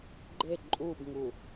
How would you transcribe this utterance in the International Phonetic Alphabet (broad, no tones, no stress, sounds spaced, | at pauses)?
ɡ͡ǃ e ǃʼ u b ŋ u